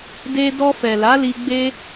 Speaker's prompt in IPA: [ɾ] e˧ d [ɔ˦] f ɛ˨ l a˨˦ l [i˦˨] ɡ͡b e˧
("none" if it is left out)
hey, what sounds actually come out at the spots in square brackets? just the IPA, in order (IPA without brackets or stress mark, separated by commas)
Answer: d, ɔ˧, i˧